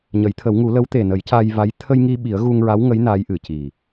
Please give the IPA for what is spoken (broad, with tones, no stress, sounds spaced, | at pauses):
ɲ ə˨˩˦ j t̪ʰ ə˨˩˦ w ŋ u˨˩˦ l ə˧˥ w t̪ e˨˩ n ə˨˩˦ j c a˧ j v a˧˥ j t̪ʰ ə˧ j ŋ i˧ ɓ i˨˩˦ ə̯ ɣ u˧ ŋ ɹ a˧˥ w ŋ ə˧˥ j n a˧˥ j ʔ ɨ˨˩˨ c i˨˩